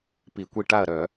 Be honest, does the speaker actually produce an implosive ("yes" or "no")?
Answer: no